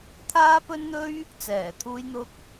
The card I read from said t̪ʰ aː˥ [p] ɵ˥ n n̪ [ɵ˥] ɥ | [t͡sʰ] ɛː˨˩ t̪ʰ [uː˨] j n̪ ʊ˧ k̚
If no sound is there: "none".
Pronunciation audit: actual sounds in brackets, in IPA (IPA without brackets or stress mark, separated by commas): p, ɵ˥, t͡s, uː˧